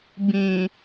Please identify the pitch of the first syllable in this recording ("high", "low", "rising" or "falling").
low